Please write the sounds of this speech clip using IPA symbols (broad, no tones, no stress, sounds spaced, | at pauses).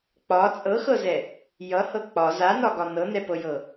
k͡p ɒ t͡sʼ ɤ x ɤ z ɛ | j ʌ h ɤ k͡p ɒ z a n ɒ ɡ ɒ n ɤ n ɛ p ɤ j ɤ